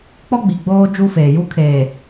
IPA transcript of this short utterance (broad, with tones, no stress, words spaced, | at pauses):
k͡pɔ˦ɡ͡bi˨ɡ͡boː˦ d͡ʒu˦feː˨ju˦kʰeː˨